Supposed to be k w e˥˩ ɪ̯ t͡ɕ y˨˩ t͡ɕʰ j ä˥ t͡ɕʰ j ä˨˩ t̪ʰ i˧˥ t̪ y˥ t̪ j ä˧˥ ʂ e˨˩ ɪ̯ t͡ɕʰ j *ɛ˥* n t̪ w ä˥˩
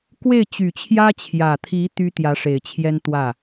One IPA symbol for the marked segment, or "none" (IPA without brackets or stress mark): ɛ˥